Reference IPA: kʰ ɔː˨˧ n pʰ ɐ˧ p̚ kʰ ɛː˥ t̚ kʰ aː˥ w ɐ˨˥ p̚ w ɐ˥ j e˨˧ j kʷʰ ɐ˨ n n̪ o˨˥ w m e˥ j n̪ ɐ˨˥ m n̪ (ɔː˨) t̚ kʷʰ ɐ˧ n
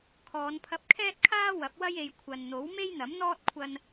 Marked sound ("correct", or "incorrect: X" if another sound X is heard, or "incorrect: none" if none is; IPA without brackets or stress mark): incorrect: ɔː˥